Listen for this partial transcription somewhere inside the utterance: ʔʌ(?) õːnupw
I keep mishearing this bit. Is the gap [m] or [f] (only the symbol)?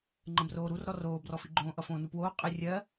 f